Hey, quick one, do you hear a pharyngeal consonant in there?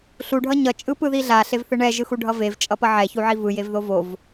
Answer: yes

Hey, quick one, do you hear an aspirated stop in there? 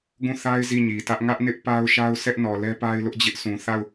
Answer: no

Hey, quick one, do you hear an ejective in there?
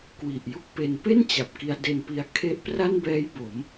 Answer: no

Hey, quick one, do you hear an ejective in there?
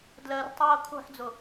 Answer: no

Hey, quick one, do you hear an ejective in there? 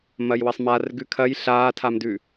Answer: no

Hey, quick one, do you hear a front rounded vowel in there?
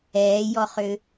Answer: yes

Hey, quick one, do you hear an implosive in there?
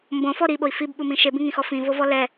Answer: yes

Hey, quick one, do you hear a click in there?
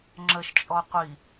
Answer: yes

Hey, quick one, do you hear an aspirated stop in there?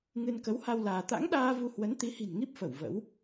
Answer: no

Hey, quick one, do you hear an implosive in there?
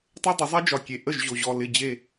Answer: no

